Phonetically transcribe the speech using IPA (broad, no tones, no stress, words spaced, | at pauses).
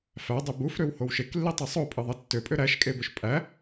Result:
fædˤe bufɾøw howʃeklːi tˤesˤopʼɯ ðˤetːøpʼø ɾæʃkʼebøʃ pʼæ